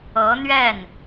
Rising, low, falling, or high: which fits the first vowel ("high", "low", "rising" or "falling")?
rising